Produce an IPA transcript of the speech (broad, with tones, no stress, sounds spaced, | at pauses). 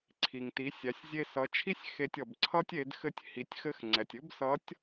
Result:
ǀʰ i˩ ŋ t i˩˧ sʲ æ˩˧ sʲ zʲ e˧ s ʌ˩˧ t͡ʃʰ i˥ sʲ x e˧ tʲ ʌ˩ b ǀʰ ʌ˥ tʲ e˩˧ d x ɘ˧ tʲ h i˩˧ tʲ x ɘ˧˥ x ŋ͡ǀ ɛ˩ tʲ ɘ˥ b s ʌ˧˥ tʲ